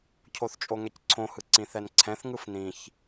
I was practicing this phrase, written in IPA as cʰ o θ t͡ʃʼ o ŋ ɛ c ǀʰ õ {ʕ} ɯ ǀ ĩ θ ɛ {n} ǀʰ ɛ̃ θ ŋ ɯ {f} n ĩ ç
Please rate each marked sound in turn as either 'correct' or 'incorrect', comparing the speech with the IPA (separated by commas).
incorrect, correct, correct